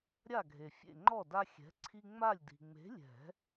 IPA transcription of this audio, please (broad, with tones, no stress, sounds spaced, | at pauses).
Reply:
ɾʲ a˥˨ ɡʱ e˨ fʲ ḛ˥˨ ŋ͡ǃ ɔ˥˨ d a˦ xʲ ɛ̤˨˥ ǀʰ i˦ ŋ͡m a˥˨ lʲ d i̤˨ ŋ͡m e̤˨˥ lʲ ɛ̤˨˩˦